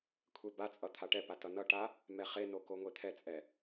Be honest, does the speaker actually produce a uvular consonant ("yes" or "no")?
yes